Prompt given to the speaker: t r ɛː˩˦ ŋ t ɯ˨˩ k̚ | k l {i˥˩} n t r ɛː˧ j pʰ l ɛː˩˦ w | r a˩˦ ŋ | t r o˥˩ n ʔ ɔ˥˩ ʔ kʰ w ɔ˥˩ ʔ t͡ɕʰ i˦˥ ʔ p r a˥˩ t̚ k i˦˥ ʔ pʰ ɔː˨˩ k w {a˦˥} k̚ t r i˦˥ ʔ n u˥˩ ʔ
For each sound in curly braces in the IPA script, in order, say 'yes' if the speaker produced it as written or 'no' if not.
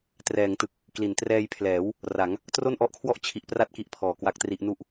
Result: no, yes

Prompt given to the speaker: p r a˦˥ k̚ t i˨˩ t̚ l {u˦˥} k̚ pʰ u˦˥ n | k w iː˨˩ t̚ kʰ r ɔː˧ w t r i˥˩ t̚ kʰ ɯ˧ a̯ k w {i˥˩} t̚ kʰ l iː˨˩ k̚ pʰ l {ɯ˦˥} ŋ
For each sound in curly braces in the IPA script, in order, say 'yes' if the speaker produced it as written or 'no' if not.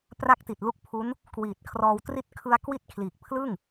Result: yes, yes, no

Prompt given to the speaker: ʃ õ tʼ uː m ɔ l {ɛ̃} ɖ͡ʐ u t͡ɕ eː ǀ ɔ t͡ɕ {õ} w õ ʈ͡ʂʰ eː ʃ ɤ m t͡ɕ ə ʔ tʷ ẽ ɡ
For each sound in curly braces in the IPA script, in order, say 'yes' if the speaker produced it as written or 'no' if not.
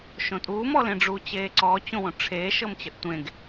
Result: no, yes

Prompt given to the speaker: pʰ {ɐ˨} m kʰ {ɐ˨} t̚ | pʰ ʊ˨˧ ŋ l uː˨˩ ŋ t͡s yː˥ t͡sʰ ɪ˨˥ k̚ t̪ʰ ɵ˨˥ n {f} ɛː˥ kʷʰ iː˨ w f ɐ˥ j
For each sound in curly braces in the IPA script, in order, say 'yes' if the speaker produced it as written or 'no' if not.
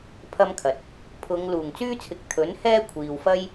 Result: no, yes, no

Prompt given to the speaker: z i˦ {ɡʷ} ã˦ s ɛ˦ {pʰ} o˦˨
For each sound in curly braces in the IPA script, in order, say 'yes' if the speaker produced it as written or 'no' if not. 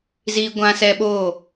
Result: yes, no

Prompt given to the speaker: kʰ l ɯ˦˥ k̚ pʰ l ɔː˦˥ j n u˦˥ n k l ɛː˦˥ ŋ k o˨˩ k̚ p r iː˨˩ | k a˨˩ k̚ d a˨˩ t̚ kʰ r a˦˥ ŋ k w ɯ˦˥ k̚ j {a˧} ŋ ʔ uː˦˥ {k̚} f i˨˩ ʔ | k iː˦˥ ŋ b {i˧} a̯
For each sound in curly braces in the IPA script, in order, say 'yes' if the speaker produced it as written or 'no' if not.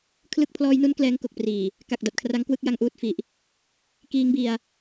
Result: yes, no, yes

